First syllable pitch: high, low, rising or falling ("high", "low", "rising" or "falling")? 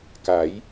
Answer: rising